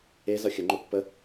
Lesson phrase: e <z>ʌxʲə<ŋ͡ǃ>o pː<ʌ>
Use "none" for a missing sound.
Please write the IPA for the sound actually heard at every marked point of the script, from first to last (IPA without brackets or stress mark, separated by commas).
z, ŋ͡ǃ, ə